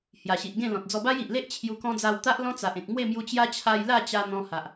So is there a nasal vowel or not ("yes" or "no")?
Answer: yes